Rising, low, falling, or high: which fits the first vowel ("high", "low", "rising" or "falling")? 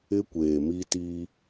high